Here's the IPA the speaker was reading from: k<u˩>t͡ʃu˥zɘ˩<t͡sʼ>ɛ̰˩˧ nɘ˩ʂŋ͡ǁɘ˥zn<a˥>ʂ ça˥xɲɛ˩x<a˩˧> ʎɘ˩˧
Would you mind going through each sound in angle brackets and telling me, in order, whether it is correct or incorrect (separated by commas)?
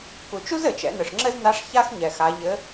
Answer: correct, incorrect, incorrect, correct